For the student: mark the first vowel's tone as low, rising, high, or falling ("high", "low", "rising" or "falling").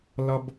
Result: high